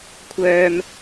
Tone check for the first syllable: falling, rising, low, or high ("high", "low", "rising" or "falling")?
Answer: low